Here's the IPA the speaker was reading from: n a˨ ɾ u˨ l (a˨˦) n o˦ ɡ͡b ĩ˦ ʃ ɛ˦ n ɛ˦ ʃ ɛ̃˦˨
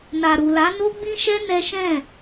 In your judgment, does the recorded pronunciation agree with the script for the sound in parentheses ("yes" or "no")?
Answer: yes